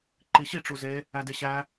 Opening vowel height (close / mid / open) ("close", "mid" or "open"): close